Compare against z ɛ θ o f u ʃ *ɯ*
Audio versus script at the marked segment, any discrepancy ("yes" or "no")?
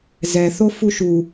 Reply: yes